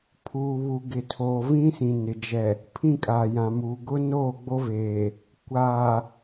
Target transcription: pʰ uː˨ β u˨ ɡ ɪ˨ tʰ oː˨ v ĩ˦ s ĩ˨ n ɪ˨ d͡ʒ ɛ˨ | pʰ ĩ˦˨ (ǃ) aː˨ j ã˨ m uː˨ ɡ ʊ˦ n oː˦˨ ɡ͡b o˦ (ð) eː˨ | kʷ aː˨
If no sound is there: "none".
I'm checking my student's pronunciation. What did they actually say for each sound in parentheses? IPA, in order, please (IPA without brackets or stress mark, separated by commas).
kʼ, v